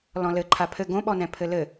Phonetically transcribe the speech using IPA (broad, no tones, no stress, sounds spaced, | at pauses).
l ɔ̃ l ɘ ǃʰ a pʰ ɘ ɡ õ ɓ ɔ n ɛ̃ pʰ ɘ l ɘ